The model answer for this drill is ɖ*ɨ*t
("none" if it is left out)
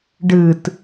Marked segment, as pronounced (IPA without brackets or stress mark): ɨ